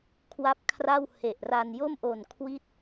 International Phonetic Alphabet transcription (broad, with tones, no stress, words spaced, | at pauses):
kʰwa˦˥p̚ kʰra˥˩w he˨˩ʔra˧n jo˥˩mʔo˨˩n kʰwi˥˩t̚